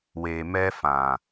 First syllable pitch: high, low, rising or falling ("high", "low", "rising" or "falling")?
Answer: low